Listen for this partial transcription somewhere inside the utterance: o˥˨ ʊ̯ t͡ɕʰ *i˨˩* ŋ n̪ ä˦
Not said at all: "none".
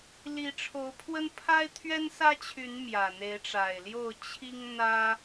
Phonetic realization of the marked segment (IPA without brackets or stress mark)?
i˦